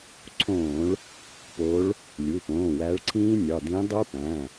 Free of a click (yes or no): no